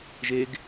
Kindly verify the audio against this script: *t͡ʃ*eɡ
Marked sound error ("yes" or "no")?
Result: yes